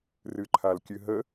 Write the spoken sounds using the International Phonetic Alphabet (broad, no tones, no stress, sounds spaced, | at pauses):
r ɨ ǃʰ a l kʲ ɨ ɦ ə